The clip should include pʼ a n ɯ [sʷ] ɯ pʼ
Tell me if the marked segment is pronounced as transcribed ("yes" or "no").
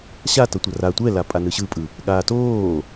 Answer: no